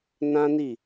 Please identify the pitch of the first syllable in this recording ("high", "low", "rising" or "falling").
high